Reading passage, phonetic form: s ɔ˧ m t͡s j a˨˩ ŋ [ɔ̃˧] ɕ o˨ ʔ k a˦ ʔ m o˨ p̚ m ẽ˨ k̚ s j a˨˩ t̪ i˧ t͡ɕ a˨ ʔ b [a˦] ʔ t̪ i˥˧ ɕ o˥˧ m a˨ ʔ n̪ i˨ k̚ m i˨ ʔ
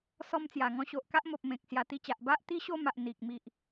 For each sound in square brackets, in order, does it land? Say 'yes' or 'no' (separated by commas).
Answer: yes, yes